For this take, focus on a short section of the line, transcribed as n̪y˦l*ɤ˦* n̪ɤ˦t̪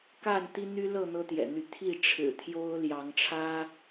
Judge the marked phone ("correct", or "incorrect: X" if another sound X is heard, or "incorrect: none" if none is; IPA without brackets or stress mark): incorrect: ɤ˥˨